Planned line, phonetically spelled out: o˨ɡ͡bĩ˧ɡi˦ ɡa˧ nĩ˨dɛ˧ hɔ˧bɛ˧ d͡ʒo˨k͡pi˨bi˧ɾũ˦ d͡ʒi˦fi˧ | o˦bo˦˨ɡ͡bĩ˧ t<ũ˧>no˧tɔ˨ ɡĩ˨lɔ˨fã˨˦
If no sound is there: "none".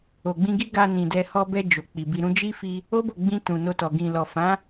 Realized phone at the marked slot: ũ˨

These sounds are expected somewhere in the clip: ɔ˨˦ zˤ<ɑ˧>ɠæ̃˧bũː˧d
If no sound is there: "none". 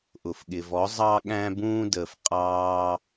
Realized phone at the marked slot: ɑ˧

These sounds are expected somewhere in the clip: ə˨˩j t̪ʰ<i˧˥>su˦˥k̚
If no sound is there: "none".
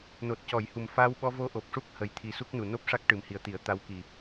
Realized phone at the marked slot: i˨˩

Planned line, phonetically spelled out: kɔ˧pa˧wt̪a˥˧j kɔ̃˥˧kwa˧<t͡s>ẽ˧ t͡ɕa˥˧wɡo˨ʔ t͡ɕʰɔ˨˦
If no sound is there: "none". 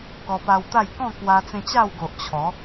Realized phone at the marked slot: t͡s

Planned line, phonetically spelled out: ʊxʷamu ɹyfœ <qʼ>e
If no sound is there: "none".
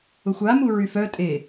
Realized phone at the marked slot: tʼ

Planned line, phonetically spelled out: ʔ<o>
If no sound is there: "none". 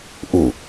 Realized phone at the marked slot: u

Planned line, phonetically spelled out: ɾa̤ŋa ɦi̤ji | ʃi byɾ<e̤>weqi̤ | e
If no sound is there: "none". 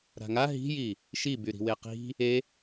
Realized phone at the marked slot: i̤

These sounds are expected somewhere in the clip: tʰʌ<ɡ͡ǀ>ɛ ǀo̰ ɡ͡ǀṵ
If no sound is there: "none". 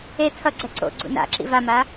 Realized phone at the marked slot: ɡ͡ǀ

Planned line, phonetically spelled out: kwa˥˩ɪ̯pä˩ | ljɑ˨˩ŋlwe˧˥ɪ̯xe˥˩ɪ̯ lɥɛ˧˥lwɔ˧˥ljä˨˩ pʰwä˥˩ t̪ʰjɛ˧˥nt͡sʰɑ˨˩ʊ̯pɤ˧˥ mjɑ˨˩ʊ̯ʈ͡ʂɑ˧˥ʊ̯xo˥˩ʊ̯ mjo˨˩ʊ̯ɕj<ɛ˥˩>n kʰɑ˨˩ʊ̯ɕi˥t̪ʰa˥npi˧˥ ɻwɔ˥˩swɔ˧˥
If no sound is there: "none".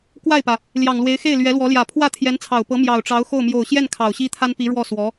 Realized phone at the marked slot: ɛ˥˩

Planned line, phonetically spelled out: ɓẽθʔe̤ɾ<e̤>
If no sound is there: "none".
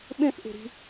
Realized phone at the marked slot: i̤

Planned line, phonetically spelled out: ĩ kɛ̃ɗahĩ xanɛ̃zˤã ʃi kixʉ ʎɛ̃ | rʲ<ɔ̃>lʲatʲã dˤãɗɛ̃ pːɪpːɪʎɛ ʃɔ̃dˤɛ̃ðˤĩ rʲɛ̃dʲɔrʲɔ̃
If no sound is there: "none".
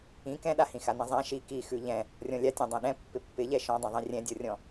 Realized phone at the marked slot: ɔ̃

